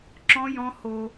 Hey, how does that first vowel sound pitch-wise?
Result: high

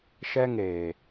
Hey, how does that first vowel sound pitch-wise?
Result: high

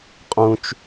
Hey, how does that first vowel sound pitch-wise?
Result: low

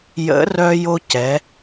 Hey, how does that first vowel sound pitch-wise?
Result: rising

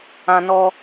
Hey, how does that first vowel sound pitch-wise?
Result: high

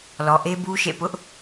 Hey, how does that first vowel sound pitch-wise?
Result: low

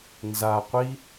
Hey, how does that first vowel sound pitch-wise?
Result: low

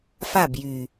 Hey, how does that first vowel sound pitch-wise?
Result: falling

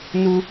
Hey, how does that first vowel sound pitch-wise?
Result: high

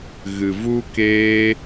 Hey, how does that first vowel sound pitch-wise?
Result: low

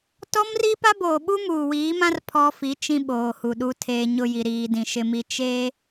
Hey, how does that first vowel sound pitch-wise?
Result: high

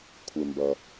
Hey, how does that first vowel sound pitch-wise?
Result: low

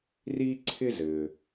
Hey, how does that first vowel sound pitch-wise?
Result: high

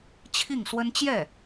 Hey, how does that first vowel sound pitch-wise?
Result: falling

